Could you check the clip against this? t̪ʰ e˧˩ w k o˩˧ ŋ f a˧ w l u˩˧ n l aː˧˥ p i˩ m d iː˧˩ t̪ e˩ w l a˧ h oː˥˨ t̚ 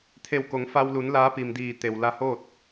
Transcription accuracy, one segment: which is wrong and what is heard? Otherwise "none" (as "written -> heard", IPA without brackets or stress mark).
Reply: none